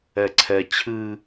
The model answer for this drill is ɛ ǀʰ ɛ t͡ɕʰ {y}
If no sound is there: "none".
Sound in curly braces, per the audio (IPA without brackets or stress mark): ɨ